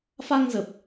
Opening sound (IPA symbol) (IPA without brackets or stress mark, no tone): f